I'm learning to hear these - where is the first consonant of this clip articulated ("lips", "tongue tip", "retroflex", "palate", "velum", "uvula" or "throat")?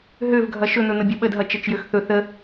throat